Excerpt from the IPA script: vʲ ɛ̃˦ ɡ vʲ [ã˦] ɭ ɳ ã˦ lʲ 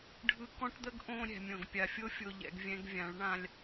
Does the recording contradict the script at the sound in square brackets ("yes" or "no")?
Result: yes